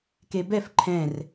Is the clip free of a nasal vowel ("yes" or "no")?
no